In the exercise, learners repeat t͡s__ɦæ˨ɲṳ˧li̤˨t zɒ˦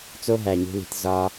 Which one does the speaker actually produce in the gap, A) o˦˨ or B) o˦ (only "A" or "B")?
B